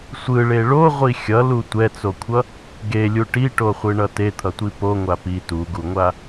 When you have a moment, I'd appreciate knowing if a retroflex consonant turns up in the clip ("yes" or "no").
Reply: yes